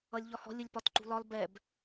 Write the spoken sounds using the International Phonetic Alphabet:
ʌ lʲ ʎ ɒ h ɔ̤ lʲ ʊ lʲ p ɒ t ǃ ṳ l ɒ l b ɛ b

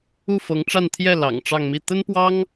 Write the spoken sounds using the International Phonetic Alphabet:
u˥˩ f ɤ˧˥ ŋ ʈ͡ʂ a˥˧ n t̪ʰ j ɛ˥˩ l ɑ̰˨˩ ŋ ʈ͡ʂ ɑ˥˧ ŋ m i˥˩ t̪ ə˥ n p w ɑ˥ ŋ

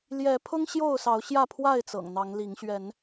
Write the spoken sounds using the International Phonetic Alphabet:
l j ɛ˨˦ pʰ ʊ˦ ŋ ɕ j o˥˨ ʊ̯ s ɑ˨˦ ʊ̯ ɕ j ä˥˨ pʰ w a˥˨ ɪ̯ t͡s ɤ̰˨˩ ŋ n̪ ɑ˨˦ ŋ l i˨˦ ŋ ɕ ɥ ɛ˨˦ n

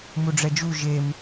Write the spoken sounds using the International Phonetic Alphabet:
m u ɖ͡ʐ ɛ d͡ʒ u ʒ e m

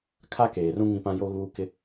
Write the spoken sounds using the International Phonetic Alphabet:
kʰ a˦ k eː˨ r ũ˦ ŋ ĩ˦ p ã˦ j o˦ ɣ uː˦ k ɪ˦

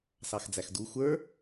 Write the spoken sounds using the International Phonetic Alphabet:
s ɑ x d͡z æ x d u xʷ ə˞

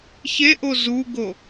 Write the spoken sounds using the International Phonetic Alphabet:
ç e ʔ o z u ɡ o

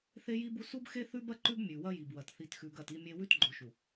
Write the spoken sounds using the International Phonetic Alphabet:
θ e˦ j i˦ b u˦ s u˦ b x e˦ θ ʉ˦ b ɐ˦ ǃ ʉ˦ b mʲ ʉ˨ w ɐ˦ j i˨ b w ɐ˨ t θ i˨ t x ʉ˨ ɡ ɐ˦˨ t i˦ mʲ e˦ w ʉ˦ t ɡ͡ǃ o˨ ʃ u˨

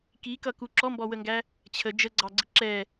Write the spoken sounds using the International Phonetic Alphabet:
k i k ʌ k u ǁ ɔ m b ɔ w ə ŋ ɡ æ | t͡ɕʰ ə d͡ʒ ə ɡ͡ǀ ɑ ɡ͡ǀ ɪ ǁ ɛ

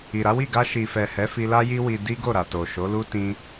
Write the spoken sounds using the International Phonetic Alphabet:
i˨ ɾ a˨˦ w i˦˨ ɡ a˧ ʃ i˨ f ɛ˨ h ɛ˨˦ f i˧ l a˦ j i˦ w i˧ d i˦ ɡ o˦˨ ɾ a˨ t o˨ ʃ o˨˦ l u˦ t ĩ˦

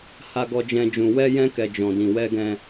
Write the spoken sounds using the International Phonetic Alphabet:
h a˦ ɡ ɔ˦ d͡ʒ ɛ̃˦ d͡ʒ ũ˧ w ɛ˦ j ɛ̃˦ k ɛ˧ d͡ʒ ɔ̃˧ d ĩ˧ w ɛ˦ ɡ ɛ̃˦

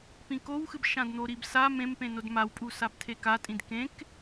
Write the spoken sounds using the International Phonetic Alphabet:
p ĩ k o w x ɨ b ʃ ã d n̪ o ɾ i b s a m ẽ m p ẽ n o d m a w pʼ u s a b tʰ e k a tʼ ĩ d k ẽ k

